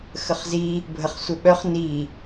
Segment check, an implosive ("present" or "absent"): present